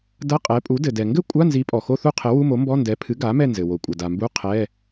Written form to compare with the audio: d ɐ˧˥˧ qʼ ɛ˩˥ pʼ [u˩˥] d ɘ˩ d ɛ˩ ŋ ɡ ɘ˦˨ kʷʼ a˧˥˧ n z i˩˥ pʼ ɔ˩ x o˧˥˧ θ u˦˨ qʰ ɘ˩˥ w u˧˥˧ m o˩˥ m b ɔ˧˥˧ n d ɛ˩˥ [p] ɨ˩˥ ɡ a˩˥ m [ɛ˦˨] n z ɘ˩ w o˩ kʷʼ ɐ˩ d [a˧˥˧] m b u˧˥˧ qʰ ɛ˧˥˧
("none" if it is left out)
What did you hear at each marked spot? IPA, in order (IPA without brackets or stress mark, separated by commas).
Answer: u˩˥, pʰ, ɛ˦˨, a˩